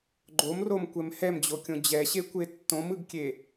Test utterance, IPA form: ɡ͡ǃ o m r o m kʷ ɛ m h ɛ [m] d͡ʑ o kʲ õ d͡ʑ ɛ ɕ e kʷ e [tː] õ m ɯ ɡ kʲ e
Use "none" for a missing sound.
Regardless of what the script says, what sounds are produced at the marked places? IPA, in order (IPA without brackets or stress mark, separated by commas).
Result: m, tː